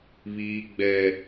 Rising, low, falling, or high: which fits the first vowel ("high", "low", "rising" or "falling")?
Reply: high